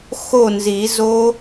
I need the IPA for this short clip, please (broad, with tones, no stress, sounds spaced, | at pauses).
x o˥˨ n z i˨˩˦ z o˦˥